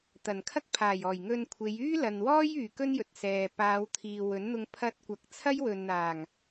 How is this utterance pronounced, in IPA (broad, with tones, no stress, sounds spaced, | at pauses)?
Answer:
t̪ ɐ˨˩ n kʰ ɐ˥ k̚ pʰ aː˨˩ j ɔː˨˩ j ŋ ɵ˧ n kʷʰ e˨˧ j yː˥ l ɐ˨ n w ɔː˥ j yː˨ k ɵ˥ n j ɵ˨ t̚ s ɛː˨ p aː˨˧ w t̪ʰ iː˨ w ɵ˨˥ n n̪ ʊ˧ ŋ pʰ ɐ˧ t̚ kʷ ɐ˨˥ k̚ t͡sʰ ɐ˥ j w ɵ˨ n n̪ aː˨˩ ŋ